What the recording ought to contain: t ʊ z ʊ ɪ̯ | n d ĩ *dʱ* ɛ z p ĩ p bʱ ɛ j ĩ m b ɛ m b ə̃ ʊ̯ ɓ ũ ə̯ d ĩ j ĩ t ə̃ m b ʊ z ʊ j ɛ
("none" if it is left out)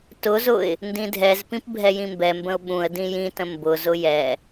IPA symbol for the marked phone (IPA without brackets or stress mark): dʱ